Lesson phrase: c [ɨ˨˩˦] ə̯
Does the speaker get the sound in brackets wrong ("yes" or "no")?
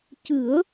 no